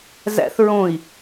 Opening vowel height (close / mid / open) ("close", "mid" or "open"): open